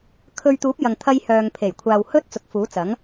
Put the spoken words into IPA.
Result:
kʰɵ˧ɥt̪uː˨˥p̚jɐ˨ŋ t̪ʰɐ˧j hœː˨ŋpʰe˨˩jkʷʰaː˨w hɵ˥t̚ t͡sʊ˨˥k̚fuː˨˥t͡sɐ˨˥ŋ

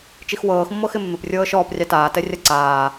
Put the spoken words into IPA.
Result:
t͡ʃixwɤːx mːɤxɪmːɪp rʲɤːʃɔːp rʲɑtaː tɛrʲaǀaː

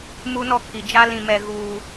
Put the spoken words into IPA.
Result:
mu˦nɔ˦kʰi˨ d͡ʒa˦ lĩ˨mɛ˨ ɣuː˨

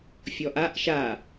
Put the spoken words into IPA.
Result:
fʲɔʔaʔ ʃa

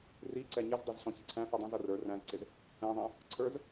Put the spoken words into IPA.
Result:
riǀɛ ɲɪzdˤizɬɔ̃ çɪǀʰæ̃sudˤĩ zʌrə˞ ræ̃zǀɪz | ɛ̃ðˤɛ̃ | ǀʰə˞z

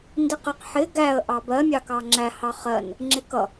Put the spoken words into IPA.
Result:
ndiqəq ħɪ ɡæə̯ ʔɑbɜ mʲɑkɑŋ͡ǁæ hɑχɜn | ŋ͡ǁɪkʌ

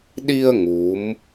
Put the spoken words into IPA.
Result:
ɗi˧ə̯ ŋu˨˦m

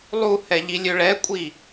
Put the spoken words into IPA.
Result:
lˠuhɛ ʎilʲøɭɛkʷʼi

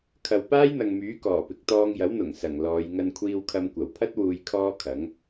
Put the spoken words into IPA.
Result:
kʰɐ˨w paː˥jn̪ɐ˨ŋmyː˨˥ kɔː˨˩ pɪ˨k̚t̪ɔː˧ŋjɐ˨˥wn̪ʊ˨˩ŋ sɐ˨˩ŋlɔː˨˧j ŋɐ˧nkʷʰiː˧wkʰɐ˧m kʷɐ˨˩wpʰɐ˥t̚ wuː˨jkʰɔː˧ kʰɐ˨˥ŋ

